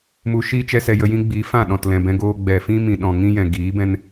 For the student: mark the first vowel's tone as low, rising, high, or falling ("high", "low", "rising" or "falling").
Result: low